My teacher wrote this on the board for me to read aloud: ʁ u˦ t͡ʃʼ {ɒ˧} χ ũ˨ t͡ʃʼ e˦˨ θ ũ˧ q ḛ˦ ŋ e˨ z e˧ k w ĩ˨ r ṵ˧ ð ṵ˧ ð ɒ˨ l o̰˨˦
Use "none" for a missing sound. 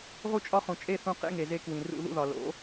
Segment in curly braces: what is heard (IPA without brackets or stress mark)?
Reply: ɒ˦